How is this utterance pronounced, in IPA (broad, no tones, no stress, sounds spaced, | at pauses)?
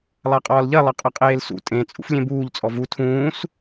lˠ a qʼ ɒː l ʎ ɐ lˠ ɐ qʼ ɐ qʼ eː l s ṵ tʼ ẽ t͡sʼ ṵ f lʲ ẽ b uː ʎ t͡sʼ ɔ v u tʰ ũː s